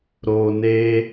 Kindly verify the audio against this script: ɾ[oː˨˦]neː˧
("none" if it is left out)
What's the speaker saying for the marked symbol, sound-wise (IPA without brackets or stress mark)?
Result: oː˨